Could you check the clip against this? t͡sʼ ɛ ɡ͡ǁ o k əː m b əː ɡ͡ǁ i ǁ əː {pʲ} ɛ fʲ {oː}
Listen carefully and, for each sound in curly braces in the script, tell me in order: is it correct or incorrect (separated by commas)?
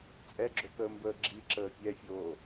correct, correct